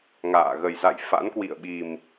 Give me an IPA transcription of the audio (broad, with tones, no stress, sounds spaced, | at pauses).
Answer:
ŋ a̰ː˧˨ ɣ ə˨˩ j z a̰˧˨ j f a̰˧˥ n k w ḭ˧˨ ə̯ ɓ i˨˩ m